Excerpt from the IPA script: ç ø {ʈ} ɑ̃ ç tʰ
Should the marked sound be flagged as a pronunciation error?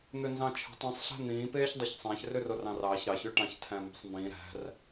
no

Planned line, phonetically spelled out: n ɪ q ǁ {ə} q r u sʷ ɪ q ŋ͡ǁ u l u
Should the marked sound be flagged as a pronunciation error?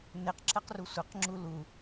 no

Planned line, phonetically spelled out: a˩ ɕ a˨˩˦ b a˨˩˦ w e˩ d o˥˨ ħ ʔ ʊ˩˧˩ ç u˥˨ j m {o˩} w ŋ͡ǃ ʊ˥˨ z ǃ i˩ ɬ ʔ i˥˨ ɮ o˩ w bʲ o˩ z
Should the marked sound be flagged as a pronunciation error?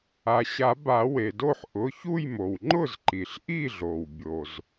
no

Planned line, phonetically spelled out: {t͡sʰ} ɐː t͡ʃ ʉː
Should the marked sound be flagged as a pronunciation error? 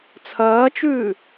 no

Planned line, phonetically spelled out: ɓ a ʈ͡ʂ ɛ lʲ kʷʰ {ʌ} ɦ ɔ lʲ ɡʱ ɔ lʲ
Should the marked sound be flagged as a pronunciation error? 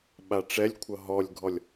no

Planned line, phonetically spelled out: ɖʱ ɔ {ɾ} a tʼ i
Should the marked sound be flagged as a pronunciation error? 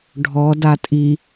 yes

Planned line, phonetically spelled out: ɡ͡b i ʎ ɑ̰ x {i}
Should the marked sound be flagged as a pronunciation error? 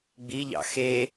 yes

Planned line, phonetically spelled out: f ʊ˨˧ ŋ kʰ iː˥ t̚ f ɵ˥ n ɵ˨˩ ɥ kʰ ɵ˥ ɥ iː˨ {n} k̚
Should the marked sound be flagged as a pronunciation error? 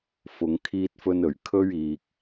yes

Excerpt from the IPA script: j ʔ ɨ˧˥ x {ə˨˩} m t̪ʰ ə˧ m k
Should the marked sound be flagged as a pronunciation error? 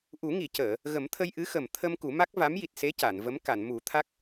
no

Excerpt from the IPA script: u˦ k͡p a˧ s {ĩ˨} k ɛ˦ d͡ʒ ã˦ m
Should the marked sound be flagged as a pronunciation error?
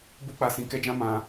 yes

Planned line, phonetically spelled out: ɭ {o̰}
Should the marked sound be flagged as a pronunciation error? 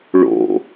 no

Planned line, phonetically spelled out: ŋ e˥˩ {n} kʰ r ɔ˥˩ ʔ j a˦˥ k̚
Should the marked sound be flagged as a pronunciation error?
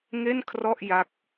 no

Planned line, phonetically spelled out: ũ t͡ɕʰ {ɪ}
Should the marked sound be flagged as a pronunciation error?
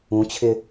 no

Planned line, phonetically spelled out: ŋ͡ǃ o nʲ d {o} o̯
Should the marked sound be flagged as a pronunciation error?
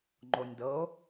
yes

